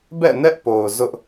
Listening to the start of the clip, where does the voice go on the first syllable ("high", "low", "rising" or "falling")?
falling